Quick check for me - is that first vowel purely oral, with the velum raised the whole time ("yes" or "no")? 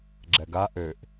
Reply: yes